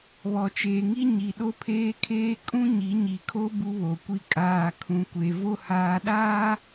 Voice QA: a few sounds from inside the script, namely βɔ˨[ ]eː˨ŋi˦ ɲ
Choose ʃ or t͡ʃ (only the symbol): t͡ʃ